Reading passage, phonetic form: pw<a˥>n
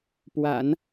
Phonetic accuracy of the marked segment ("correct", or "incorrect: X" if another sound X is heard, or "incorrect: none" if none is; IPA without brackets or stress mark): incorrect: a̰˨˩˦